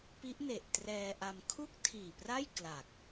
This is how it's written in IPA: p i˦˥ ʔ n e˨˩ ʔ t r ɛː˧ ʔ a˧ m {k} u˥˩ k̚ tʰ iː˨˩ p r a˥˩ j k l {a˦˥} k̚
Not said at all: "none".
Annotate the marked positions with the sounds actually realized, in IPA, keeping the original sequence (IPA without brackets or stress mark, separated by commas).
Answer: kʰ, a˨˩